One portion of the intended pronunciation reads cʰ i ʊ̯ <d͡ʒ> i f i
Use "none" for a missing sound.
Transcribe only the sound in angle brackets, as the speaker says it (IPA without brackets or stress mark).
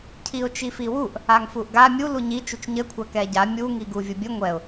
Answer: t͡ʃ